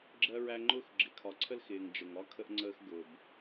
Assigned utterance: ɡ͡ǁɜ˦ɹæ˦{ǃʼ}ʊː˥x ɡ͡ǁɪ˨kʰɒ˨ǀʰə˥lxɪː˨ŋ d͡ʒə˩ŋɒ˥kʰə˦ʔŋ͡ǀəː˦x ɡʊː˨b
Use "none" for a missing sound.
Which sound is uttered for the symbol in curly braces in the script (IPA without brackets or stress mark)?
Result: ŋ͡ǃ